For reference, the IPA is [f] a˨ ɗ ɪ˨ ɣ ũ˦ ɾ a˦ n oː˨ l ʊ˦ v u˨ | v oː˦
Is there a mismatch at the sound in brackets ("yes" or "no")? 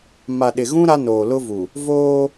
yes